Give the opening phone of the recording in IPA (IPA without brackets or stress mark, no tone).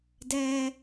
d